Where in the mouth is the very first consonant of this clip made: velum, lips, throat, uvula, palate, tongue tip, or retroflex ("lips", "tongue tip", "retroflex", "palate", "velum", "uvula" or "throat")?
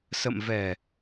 tongue tip